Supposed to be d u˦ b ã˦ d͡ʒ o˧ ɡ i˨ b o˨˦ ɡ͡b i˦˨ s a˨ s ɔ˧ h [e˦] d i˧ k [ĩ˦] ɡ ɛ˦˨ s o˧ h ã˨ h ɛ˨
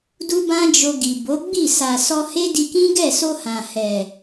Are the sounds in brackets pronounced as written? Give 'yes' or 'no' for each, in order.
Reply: yes, yes

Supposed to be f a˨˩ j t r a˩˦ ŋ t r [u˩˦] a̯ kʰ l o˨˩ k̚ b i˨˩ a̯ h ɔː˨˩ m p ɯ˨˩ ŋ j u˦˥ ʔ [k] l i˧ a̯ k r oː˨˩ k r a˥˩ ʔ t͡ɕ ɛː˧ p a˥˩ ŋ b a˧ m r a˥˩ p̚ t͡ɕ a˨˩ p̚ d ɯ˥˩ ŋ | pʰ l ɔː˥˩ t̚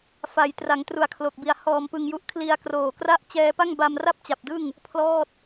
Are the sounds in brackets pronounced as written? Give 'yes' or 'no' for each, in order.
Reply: yes, no

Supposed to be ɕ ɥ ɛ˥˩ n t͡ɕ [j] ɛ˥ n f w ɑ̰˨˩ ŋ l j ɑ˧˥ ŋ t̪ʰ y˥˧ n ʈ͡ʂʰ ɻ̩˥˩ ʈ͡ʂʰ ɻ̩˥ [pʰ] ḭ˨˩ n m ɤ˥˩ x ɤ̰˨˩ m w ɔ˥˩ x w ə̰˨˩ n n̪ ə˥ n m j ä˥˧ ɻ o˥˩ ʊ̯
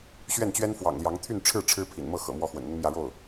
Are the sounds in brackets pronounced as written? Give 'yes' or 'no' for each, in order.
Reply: no, yes

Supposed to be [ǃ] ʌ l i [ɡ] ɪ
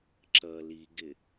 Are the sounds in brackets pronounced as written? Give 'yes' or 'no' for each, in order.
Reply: no, yes

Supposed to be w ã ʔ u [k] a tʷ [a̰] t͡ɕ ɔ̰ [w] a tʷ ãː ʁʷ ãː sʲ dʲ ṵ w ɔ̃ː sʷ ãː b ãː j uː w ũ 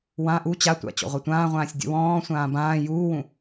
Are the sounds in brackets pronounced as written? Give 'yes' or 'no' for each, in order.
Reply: no, yes, no

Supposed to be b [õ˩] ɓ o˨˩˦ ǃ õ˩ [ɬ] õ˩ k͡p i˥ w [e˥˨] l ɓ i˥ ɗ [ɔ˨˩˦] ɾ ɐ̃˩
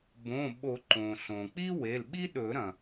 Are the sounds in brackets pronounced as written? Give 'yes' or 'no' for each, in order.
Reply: no, yes, no, no

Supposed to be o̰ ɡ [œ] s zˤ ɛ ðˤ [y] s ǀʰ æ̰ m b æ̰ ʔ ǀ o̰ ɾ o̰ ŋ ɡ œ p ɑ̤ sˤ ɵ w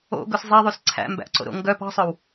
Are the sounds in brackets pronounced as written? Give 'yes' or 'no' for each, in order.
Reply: no, yes

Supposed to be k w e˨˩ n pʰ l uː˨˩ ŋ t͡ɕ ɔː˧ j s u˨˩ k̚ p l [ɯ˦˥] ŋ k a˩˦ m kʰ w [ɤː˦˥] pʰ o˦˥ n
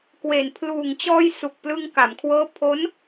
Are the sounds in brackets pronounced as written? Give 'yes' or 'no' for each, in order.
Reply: no, yes

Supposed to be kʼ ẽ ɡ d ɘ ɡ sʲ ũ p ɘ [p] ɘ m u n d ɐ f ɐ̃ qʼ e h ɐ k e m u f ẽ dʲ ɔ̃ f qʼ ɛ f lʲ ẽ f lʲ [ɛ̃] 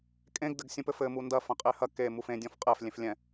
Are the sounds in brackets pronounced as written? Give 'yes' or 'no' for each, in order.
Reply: no, yes

